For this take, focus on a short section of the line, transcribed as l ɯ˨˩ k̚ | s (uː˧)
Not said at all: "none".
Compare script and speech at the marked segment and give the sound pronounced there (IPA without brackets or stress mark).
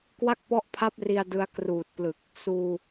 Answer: uː˧